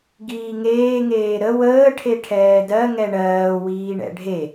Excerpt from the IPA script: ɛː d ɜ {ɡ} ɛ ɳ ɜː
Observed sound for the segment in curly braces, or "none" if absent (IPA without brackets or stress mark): ŋ